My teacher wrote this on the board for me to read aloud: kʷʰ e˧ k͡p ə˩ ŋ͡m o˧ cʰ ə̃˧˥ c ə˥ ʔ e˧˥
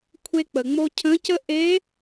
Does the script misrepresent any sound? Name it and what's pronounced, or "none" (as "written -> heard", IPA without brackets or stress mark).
none